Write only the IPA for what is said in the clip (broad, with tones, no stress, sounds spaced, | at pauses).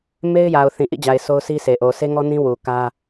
m e˦ ɪ̯ j a˨ ʊ̯ θ ĩ˨ ʔ ḭ˦˨ d͡ʑ a˨ ɪ̯ s o˦ ʊ̯ s i˦ s e˨ ʔ o˨ s e˦ ŋ ɔ˦ n ĩ˦ w u˨ k ä˦